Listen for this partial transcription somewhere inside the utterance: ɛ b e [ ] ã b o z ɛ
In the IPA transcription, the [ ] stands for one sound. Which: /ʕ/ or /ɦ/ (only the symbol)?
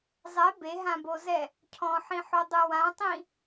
ɦ